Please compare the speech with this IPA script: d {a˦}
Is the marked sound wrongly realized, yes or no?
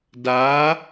yes